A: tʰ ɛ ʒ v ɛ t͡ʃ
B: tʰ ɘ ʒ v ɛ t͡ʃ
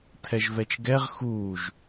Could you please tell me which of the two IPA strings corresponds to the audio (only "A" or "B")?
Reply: A